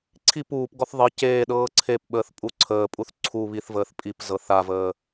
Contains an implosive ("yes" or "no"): yes